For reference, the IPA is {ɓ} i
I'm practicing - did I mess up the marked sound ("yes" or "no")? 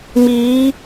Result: yes